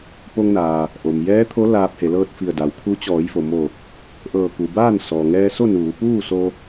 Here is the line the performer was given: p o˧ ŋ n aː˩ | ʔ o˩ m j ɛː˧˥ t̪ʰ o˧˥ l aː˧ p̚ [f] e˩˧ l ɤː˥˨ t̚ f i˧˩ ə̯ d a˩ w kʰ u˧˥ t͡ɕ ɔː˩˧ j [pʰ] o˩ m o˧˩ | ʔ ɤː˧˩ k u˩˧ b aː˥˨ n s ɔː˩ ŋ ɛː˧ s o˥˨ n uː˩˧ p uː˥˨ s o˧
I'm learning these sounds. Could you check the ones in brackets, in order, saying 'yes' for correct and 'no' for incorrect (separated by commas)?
no, no